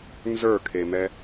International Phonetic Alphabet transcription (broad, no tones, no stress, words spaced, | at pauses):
nzə˞kʰemɛ